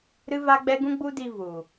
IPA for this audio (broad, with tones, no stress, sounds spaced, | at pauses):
ɾ ɨ˦ v a˦ ɡ͡b ɛ˦ ɡ ũ˦ ɡ͡b u˦ d i˧ v u˨